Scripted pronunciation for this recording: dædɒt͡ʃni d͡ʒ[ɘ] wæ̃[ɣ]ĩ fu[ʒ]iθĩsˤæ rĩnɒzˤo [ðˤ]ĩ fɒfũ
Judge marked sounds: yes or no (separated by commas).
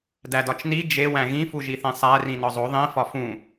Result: no, yes, yes, yes